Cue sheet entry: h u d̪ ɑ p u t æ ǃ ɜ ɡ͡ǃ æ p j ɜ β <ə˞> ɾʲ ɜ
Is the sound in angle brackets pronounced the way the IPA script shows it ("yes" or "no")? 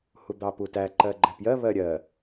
no